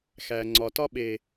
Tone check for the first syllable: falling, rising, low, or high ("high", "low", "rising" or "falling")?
low